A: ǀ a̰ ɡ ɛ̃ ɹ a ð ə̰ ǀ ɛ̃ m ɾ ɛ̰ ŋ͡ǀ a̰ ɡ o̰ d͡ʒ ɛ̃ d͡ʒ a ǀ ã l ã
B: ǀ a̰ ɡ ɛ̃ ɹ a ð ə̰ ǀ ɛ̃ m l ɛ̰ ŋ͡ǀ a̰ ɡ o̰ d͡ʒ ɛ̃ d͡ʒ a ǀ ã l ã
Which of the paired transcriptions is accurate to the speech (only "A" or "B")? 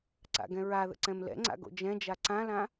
B